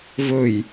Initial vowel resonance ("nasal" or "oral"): oral